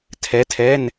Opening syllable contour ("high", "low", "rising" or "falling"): rising